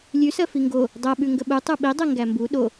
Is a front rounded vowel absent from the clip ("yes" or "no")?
yes